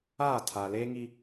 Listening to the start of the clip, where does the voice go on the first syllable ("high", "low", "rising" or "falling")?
falling